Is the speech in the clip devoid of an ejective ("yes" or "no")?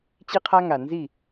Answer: yes